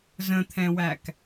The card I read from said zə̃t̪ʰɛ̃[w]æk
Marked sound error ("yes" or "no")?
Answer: no